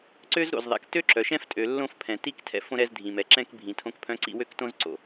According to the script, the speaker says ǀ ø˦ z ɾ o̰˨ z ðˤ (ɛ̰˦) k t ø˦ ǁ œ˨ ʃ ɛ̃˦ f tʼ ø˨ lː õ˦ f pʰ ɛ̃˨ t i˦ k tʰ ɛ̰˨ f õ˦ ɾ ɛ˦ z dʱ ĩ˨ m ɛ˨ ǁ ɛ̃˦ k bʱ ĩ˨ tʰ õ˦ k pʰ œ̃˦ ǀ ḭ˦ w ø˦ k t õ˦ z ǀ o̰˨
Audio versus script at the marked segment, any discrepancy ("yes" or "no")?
yes